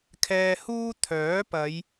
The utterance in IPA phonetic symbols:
kʰ ɛː˧ h uː˥ t̪ʰ œː˨˥ p ɐ˨˧ j

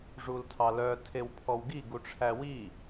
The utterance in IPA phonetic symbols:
ʐ u l tʰ ɑ l œ tʰ e w pʰ ɔ w ɡ i ɡ u ʈ͡ʂʰ æ w i

